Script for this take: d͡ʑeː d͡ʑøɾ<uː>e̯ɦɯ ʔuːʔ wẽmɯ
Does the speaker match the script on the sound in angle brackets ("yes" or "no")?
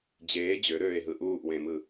no